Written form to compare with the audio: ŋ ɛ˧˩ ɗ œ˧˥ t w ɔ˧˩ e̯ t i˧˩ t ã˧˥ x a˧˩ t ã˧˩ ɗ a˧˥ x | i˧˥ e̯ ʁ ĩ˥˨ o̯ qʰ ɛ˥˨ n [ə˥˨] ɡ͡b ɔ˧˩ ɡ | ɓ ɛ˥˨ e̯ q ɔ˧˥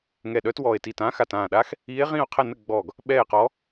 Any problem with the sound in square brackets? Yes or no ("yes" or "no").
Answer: no